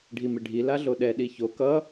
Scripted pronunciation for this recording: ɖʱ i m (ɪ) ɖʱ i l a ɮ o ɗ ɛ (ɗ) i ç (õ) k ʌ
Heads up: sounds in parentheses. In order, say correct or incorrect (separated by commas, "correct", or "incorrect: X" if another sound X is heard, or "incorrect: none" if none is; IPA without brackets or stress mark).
correct, correct, incorrect: o